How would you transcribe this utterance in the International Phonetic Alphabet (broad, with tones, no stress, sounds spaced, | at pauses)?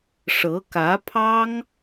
ʂ ɤ˧˥ k ä˧˥ pʰ ɑ˥ ŋ